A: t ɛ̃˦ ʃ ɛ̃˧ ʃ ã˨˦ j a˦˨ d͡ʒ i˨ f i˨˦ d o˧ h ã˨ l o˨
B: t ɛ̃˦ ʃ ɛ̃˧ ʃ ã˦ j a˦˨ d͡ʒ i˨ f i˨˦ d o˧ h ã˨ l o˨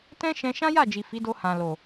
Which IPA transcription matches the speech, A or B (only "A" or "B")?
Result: B